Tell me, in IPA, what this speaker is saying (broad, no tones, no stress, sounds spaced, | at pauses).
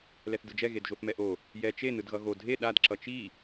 l ɛ θ d ɯ d͡ʒ ɛ ɣ e d ʒ o θ m ɛ ʔ o | j ɛ t͡ʃ e n ɯ d ɣ ʌ ɣ o dʱ e ɗ a d ǁ ʌ t͡ʃ i